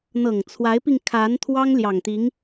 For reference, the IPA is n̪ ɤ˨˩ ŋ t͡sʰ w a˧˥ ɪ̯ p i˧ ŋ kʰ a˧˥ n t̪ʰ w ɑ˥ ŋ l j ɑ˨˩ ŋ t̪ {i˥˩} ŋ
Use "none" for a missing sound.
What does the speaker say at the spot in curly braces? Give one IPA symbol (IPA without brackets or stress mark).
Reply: i˧˥